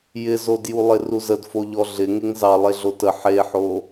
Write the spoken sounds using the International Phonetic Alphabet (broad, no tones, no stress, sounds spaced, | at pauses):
j ɪ z o d j u lˠ ɪ r u z ə d f o ʎ ɔ ɮ ɪ ŋ e ŋ z ɑ lˠ e ɮ o t ə ħ e ħ o